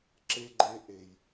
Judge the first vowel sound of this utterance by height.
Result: mid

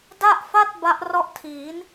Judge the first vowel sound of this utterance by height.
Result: low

